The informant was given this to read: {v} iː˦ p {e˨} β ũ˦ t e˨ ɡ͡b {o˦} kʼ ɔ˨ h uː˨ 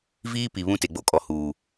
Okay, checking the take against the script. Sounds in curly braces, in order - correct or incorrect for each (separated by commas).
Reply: correct, incorrect, correct